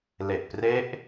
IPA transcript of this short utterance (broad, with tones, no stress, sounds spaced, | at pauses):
l e˨˩ ʔ p r e˦˥ ʔ